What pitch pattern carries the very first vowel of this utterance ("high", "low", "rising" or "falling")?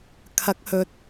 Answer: rising